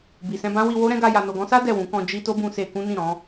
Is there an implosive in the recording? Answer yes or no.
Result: no